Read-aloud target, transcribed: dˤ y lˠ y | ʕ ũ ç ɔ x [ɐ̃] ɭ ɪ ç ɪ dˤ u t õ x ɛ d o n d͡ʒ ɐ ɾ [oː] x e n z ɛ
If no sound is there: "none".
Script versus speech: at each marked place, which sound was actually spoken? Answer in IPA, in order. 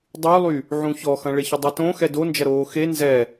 ɐ̃, oː

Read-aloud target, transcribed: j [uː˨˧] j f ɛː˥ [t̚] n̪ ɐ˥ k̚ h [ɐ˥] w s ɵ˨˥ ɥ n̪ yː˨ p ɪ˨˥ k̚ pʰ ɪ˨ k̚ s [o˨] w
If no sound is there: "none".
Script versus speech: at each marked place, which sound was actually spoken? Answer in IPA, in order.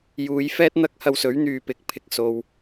uː˨˧, t̚, ɐ˧, o˨

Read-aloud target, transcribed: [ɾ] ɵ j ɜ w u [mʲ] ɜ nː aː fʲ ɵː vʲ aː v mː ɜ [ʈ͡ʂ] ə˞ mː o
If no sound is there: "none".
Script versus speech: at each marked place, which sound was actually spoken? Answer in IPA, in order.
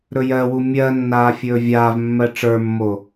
ɾ, mʲ, ʈ͡ʂ

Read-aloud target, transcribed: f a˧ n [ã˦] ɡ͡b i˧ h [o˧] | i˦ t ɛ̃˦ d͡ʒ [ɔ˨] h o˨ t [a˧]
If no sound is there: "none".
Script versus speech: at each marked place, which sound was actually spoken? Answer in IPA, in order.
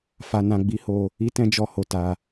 ã˧, o˧, ɔ˧, a˧

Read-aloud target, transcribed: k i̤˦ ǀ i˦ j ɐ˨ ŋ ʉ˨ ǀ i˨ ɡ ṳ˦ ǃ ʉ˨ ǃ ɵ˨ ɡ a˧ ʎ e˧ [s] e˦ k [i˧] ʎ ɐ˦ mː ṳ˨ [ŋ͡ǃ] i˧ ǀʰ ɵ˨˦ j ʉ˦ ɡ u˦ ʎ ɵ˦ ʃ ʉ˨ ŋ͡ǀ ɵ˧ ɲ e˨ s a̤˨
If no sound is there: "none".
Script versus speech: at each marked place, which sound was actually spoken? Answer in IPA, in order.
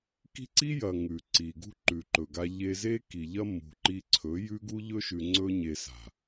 z, i˨, ǃ

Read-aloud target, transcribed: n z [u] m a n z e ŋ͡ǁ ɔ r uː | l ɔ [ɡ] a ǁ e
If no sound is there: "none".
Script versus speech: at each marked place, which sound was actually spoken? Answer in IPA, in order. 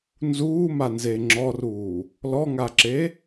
uː, ŋ

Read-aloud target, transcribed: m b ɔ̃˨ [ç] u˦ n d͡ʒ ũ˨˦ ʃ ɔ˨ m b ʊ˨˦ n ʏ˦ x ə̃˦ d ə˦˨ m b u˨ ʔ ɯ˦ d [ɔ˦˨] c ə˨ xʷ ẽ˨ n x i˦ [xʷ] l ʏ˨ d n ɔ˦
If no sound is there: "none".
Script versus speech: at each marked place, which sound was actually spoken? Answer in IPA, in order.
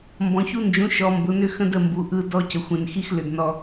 ç, ɔ˦, x

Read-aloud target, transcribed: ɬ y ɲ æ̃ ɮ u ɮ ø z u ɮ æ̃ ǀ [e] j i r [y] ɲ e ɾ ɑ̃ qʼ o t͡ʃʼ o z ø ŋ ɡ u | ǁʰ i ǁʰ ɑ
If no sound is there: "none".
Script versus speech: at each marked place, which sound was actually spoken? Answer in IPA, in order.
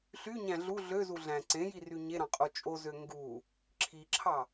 ẽ, y

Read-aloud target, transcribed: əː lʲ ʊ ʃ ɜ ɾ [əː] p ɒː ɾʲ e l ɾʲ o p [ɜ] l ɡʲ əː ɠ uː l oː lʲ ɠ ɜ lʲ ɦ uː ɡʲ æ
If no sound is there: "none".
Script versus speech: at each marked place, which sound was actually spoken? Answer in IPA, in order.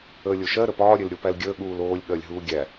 ə, æ

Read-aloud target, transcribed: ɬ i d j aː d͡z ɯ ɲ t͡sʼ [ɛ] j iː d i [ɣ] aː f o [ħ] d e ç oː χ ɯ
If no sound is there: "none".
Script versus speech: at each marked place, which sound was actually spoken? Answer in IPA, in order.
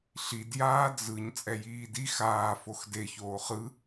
ɛ, x, x

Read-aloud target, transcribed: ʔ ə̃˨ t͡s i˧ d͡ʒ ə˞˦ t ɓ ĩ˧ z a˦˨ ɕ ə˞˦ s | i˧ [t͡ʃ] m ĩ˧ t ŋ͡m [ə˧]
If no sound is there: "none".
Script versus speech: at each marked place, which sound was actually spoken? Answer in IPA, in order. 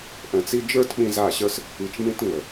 t͡ʃ, ə˨

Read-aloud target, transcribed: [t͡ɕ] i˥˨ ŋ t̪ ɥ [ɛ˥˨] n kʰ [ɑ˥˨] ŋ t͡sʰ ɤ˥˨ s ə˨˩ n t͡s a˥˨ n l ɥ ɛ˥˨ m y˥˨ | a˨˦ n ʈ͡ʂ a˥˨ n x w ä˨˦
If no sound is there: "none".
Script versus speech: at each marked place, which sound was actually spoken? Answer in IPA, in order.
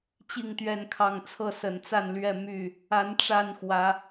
t͡ɕ, ɛ˥˨, ɑ˥˨

